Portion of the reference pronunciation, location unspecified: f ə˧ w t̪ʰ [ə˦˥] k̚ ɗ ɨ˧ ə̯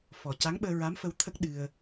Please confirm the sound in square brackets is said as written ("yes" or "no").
yes